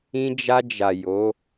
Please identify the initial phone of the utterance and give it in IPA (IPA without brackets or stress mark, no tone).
ĩ